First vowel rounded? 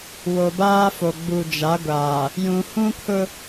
yes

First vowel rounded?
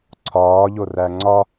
yes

